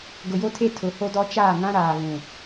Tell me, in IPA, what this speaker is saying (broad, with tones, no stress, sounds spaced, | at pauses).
ɡ ʊ˨ j o˦ tʰ e˦ tʰ ʊ˨˦ h o˦ d ɔ˦ t͡ʃ aː˦˨ ŋ ã˦ ɾ aː˨ β ũ˨